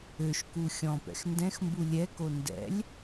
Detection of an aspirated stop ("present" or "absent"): absent